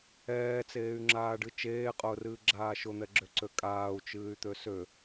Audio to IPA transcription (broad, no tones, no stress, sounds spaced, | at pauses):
ɛː t͡s eː y̯ ŋ͡ǁ aː ɖ ɨ t͡ʃ eː qʼ ʊː r ɨː ɡ͡ǁ aː ʃ ʊ n̪ ɛ ɡ͡ǁ ø ǀ ø kʼ aː u̯ t͡ʃ ɨː y̯ t̪ ø s ø